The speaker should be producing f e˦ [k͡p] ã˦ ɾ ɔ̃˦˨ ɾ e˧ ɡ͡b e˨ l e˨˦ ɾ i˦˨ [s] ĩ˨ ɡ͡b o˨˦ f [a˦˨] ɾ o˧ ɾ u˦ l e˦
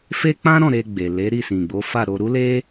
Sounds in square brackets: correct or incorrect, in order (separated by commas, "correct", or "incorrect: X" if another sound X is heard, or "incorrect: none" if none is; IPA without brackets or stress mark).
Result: correct, correct, correct